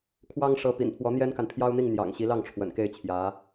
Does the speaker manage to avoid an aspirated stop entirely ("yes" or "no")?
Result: no